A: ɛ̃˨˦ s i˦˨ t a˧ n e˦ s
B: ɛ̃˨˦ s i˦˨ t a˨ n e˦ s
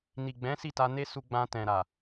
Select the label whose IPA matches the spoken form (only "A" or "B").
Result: A